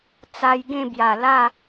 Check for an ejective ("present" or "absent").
absent